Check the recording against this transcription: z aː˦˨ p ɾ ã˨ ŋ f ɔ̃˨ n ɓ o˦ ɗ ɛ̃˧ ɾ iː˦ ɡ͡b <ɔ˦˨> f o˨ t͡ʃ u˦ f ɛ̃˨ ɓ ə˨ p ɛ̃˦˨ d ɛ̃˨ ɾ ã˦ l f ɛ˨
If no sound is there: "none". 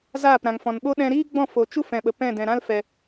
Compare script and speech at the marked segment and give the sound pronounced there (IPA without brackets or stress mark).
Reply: ɔ̃˦˨